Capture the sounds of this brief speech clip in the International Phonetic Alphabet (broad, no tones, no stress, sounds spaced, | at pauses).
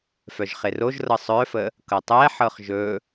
f œ ʒ χ e r o ʒ r ɤ sˤ œ f ə | k ɤ tˤ ɛ ħ ɤ χ ʒ ɵ